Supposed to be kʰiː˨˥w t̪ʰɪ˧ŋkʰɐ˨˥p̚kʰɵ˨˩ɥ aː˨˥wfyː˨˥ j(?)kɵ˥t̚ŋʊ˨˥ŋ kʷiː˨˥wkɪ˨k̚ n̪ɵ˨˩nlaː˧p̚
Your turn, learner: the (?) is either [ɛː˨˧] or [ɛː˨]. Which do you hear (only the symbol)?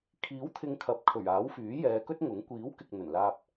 ɛː˨˧